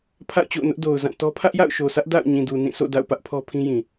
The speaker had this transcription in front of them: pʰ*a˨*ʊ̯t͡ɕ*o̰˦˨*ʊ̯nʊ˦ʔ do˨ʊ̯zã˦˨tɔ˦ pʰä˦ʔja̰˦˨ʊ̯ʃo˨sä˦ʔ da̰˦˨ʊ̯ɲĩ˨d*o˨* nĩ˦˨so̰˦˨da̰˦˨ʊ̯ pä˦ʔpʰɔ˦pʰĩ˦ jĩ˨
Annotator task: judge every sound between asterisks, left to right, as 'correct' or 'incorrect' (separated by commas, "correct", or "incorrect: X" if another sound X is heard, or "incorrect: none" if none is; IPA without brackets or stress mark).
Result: incorrect: a̰˦˨, correct, incorrect: u˨